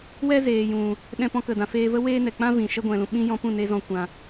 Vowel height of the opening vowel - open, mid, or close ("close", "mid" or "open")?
mid